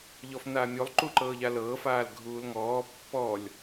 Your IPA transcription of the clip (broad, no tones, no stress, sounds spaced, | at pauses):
ʎ ɔ f n aː mʲ o lˠ ǃ u ǃ ɤː ʎ a l ɤː f aː l ɡʱ uː l ŋ ɔː pː ɔ lʲ